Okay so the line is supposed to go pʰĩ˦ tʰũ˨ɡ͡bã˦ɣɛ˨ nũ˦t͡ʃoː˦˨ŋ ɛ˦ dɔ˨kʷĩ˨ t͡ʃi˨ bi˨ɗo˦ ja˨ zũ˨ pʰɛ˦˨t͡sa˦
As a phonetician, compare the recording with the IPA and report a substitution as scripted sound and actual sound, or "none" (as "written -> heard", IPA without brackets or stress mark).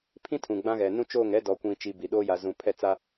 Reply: none